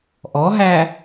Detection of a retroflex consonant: absent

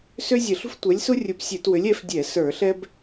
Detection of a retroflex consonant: absent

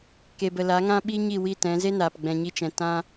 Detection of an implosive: present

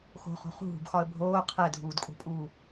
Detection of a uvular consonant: present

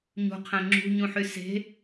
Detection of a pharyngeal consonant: present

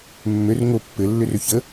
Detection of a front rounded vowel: present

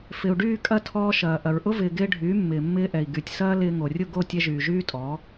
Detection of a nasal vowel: absent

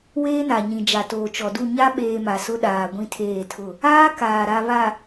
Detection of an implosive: present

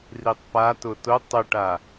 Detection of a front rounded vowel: present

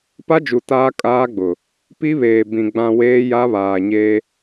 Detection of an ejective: present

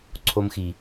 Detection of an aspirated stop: present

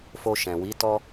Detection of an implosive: absent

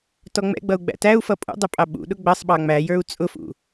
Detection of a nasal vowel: absent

